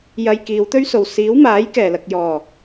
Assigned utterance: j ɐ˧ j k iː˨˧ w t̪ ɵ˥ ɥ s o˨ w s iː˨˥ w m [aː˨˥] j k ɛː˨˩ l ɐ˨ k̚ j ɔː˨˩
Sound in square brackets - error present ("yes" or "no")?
no